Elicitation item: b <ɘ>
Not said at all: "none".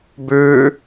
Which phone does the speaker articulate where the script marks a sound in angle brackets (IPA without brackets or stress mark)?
ʉ